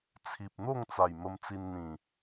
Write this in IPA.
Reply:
t͡sʰ i˨ p̚ n̪ o˥˧ ŋ t͡s a˨˩ j m ə˧ m t͡s i˧ n n̪ ĩ˨˩

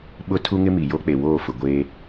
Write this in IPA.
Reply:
ɓ ʊ˦ tʰ u˦ ŋ ɪ˦ m i˨ j o˦ k͡p e˨ w oː˦˨ f ʊ˨ ɡʷ eː˦

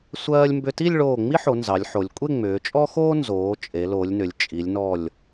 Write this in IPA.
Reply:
sʷ ɜː˧ lʲ m b ʏ˧ t i˥˧ lʲ ɭ oː˧˩ ŋ͡m i˥ ħ o˩˧ n z ɑ˩˧ lʲ ħ o˩˧ lʲ kʷʼ e˥˧ ŋ͡m ʏː˩˧ t͡ʃʼ ɔ˥ x oː˥ n z oː˩˧ t͡ʃʼ e˩˧ l o˩˧ lʲ n ʏ˩˧ lʲ t͡ʃʼ i˩˧ lʲ n ɔ˧˩ lʲ

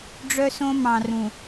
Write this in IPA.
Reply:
ɖ͡ʐ œ˦ s õ˦ m ɑ̃˨ r ũ˨

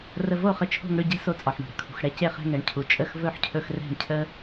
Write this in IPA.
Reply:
r ə˧ v o˦˨ χ ə˧ t͡ʃʰ o̤˧ ŋ ɽ ʏ˧ ɟ ɛ̤˦ s o˧ t͡sʼ ɒ˨ ħ ɳ o̤˨ ɽ ə̤˧ kʰ ṳ˨ x ɽ ɛ˦ c e˧ χ ɛ̤˧ ŋ ɛ˨ ɳ cʰ u˨ t͡ʃʼ ə˦˨ x v ɵ˦˨ ħ cʰ ɵ˧ x r ɛ̤˦˨ ɳ cʰ ə˦

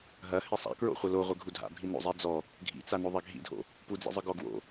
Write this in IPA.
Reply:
ɦ ɐ h e sˤ a̰ k ɹ o̰ χʷ ɐ l o ʁʷ ɘ ɡʱ u dʱ a̰ bʱ i n o̰ zˤ i d͡z ɔ | ɡʱ ḭ t͡s a n o ðˤ ɛ ɡʱ ḭ dʱ o̰ | p u d͡z ḭ zˤ ɨ ɡ ɔ ɡ w o̰

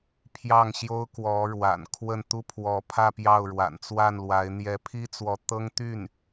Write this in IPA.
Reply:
pʰ j ɑ˥˩ ŋ ɕ j o˥ ʊ̯ k w ɔ˧˥ ɻ w a̰˨˩ n kʰ w ə˥˩ n t̪ u˥ pʰ w ɔ˧˥ pʰ ä˥˧ p j ɑ˥˩ ʊ̯ ɻ w a̰˨˩ n t͡s w a˥˩ n l w a˧˥ ɪ̯ n̪ j ɛ˧˥ pʰ i˥ t͡s w ɔ˧˥ t̪ ɤ˥ ŋ t̪ y˥˩ n

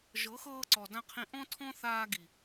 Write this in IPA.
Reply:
ʒ ɤ˨˦ x ɤː˧ ǀ ɔ˨ d ã˧ qʰ ĩ˧ ʔ ɔ̃˦ tʰ ɔ̃˦ θ aː˧ ɡ i˨

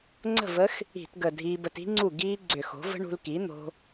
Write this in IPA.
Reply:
ŋ͡ǀ ə̤˥˩ v ə˦˥ x | i̤˧˩˧ t ɡ ə˨˩ dʱ iː˧ b ə˧ t i̤˦˥ ŋ͡ǀ u˥˩ ɡ iː˦˥ ɡ͡ǀ ʏ˧˩˧ x o̤˩˥ v ə̤˦˥ ɳ ṳ˧ l k i˩˥ n̪ o̤˧

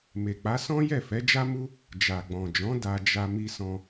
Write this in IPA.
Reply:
m e˨ k͡p a˨˦ s ɔ̃˦ j ɛ˦˨ f ɛ˨˦ d͡ʒ a˦ m u˦ | d͡ʒ a˨ ɡ͡b ɔ̃˨ d͡ʒ ɔ̃˨˦ d a˧ d͡ʒ a˧ m i˧ s ɔ̃˧

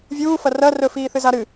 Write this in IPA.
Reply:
vʲ uː f ɐ r ɐ r ɵ f iː θ ɨ z a ɾ ɨ

